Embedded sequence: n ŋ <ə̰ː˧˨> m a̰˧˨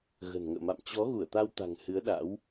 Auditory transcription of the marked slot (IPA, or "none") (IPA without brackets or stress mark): ə̰ː˧˨